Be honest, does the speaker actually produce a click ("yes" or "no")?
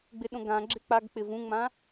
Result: yes